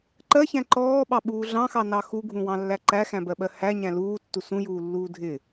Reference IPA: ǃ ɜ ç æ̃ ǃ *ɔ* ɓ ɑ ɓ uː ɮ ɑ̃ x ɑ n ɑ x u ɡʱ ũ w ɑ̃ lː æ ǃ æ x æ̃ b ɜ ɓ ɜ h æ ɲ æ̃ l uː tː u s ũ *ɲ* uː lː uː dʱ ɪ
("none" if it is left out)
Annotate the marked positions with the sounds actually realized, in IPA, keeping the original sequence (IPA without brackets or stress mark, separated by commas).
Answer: ɔː, j